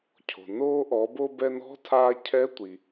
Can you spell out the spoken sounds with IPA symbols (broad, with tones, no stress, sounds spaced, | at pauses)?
cʰ o̤˩ n oː˧ ʔ ɔ˩˧ b o˧ b ɛ˧ n ɔ̤˧˥ tʰ aː˧ cʰ ɛ˧˥ tʷ i˩